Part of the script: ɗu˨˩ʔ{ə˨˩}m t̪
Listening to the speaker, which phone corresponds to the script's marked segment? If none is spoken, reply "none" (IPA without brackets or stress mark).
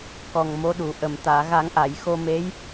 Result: ə˨˩